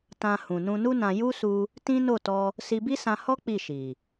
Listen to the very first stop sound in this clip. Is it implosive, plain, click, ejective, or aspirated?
plain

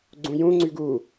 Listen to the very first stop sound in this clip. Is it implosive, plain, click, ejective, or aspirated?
click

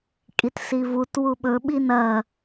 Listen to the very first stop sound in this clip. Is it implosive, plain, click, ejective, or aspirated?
ejective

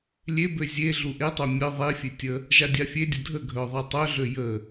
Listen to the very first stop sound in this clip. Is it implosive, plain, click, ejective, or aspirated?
plain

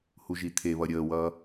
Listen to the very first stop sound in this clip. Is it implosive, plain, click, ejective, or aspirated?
aspirated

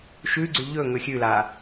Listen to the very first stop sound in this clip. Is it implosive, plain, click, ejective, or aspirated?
click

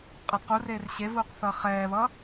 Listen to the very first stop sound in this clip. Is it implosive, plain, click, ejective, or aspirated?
ejective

